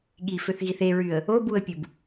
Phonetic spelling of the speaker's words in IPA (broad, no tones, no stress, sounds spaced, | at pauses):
ɠ i f ø θ ɣ i θ e ɹ y ə̯ | o b u ə̯ pʲ u b